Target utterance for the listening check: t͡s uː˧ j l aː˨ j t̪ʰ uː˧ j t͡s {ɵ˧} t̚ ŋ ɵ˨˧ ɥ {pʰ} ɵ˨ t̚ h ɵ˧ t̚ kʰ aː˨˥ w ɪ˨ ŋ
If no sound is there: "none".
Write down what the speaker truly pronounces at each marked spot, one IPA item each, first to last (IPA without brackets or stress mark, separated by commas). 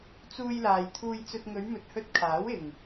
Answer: ɵ˧, m